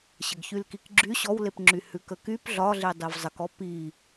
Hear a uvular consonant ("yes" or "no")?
no